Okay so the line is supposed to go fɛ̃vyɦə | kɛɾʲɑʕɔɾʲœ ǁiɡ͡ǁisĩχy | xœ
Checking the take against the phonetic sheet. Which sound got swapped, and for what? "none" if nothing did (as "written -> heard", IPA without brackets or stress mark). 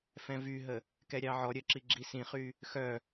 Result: none